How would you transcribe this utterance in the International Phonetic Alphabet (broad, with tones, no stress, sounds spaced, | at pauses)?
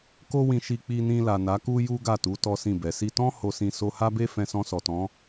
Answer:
k o˦ w ĩ˧ ʃ i˧ k͡p i˧ n ĩ˧ l a˨ n a˨˦ k u˦ j u˦ ɡ a˦˨ t u˨˦ t ɔ˦ s ĩ˦˨ b ɛ˨ s i˧ t ɔ̃˦ h o˧ s ĩ˧ s o˧ h a˦ b e˦ f ɛ̃˧ s ɔ̃˧ s ɔ˨ t ɔ̃˨˦